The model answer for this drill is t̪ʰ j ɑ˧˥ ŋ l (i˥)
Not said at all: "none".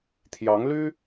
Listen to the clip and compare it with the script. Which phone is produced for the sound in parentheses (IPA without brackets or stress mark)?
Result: y˥